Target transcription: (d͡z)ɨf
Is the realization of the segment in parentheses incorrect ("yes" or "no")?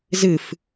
yes